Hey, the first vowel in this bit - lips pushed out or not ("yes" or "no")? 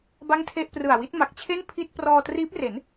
no